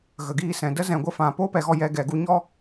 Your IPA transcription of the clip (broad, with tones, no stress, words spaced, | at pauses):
ɣə˨ɡiː˧ sɛ̃˨də˦ zɛ̃˨ɡʷə˧fã˨ po˦pɛ˨ɣɔ˦˨ jɛ˧ ɡɛ˨ɡu˦ ɲɔ˦